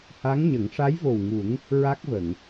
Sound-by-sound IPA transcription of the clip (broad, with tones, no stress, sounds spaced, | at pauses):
h a˧˥ ŋ ɲ ə˨˩˦ ŋ ʂ a˧˥ j v o˨˩ w ŋ u˨˩˦ ŋ | ɹ a˦˥ k̚ v ə˨˩˨ ŋ